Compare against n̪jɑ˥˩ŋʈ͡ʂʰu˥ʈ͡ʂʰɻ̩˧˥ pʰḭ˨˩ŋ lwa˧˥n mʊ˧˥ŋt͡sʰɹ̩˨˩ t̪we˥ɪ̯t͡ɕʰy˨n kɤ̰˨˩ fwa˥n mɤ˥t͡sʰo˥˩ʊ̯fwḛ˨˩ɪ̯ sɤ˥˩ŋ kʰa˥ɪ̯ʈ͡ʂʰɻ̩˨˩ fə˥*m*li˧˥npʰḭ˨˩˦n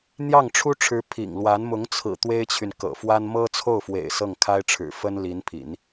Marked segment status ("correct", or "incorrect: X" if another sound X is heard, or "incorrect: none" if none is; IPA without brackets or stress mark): incorrect: n